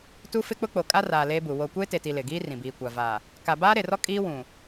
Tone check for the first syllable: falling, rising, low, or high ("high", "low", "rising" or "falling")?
high